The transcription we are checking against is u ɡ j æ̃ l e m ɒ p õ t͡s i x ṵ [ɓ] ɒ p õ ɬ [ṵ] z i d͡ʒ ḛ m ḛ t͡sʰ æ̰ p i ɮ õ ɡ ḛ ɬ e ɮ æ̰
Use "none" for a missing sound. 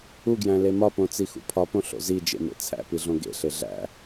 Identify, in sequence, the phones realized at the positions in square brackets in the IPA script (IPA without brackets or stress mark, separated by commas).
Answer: pʰ, o̰